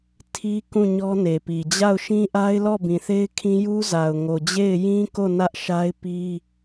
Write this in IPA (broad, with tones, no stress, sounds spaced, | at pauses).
tʰ i˦ k ũ˦˨ ɲ ɔ˦ n e˨ p i˨ d͡ʑ a˦˨ ʊ̯ ʃ ĩ˦ ʔ a˦ ɪ̯ l ɔ˦˨ b ĩ˨ θ e˦ ɪ̯ kʰ ĩ˦ j u˦ z a˨ ʊ̯ ŋ o˨ d͡ʑ e˦˨ ɪ̯ j ĩ˦ k o˦˨ n ä˦ ʔ ʃ a˦ ɪ̯ p i˦